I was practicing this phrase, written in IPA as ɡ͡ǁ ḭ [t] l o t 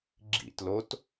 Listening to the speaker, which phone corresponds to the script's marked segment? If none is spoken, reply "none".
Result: t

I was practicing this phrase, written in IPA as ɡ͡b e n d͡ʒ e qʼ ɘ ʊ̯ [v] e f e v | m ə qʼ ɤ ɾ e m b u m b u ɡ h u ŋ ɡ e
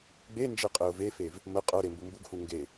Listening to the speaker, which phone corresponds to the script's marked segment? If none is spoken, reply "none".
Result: v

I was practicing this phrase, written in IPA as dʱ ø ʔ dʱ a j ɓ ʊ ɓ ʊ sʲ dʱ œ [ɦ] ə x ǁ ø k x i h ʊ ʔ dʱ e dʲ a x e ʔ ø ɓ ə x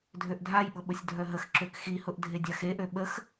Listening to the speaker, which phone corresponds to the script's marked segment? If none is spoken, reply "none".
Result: ɦ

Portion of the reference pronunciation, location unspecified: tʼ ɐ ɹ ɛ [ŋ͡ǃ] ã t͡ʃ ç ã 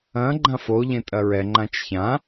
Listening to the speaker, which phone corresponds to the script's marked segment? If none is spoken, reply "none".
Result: ŋ͡ǃ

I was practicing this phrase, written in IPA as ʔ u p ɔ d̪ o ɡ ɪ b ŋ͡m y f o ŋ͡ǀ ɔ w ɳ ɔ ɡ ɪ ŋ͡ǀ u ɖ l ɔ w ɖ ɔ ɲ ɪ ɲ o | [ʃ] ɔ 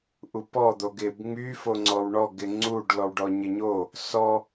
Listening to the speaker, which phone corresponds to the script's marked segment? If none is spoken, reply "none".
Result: s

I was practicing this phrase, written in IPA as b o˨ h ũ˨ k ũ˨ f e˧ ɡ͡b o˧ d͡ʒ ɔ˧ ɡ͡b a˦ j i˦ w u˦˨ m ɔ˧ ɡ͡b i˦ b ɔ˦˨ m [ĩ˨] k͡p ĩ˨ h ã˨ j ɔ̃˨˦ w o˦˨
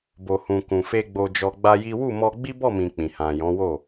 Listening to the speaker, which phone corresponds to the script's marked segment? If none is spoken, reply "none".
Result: ĩ˨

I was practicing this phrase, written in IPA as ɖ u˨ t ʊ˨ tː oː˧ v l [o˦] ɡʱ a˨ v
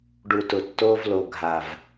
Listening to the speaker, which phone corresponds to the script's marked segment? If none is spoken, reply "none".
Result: o˨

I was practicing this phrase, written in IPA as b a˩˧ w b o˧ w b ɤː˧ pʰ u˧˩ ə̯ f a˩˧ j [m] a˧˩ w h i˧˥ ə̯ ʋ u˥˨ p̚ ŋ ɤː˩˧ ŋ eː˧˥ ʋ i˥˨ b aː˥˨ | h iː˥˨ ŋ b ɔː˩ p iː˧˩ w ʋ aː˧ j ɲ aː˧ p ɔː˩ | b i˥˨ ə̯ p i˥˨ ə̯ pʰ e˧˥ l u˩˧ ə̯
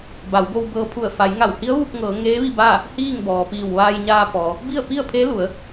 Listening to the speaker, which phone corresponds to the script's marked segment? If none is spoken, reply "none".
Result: ŋ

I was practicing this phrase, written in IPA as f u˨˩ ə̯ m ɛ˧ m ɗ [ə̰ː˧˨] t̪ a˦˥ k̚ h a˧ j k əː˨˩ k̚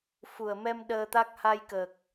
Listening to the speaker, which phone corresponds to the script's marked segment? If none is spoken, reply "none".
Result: əː˧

